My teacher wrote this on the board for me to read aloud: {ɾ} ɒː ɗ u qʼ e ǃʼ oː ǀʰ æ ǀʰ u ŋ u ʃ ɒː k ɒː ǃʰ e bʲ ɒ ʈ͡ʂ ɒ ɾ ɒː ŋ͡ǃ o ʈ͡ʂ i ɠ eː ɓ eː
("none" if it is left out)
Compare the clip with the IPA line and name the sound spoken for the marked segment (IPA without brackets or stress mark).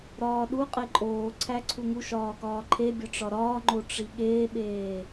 ɾ